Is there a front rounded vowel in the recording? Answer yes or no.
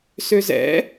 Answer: yes